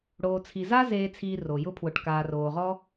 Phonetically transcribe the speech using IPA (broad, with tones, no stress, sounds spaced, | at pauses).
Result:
ɽ oː˨ t͡sʰ i˨ z aː˦ z eː˧ t͡sʰ iː˧ r o˨ j ʊ˧ pʰ w ʊ˨ ʈ k aː˨ r oː˨ ʁ ɔ˦